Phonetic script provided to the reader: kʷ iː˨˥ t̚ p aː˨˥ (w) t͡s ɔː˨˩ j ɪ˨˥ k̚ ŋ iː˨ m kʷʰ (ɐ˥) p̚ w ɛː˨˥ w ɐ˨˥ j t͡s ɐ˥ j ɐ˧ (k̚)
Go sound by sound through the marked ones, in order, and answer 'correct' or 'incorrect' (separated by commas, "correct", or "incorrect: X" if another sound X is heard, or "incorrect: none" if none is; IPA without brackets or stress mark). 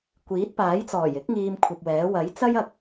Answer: incorrect: j, incorrect: ɐ˨, correct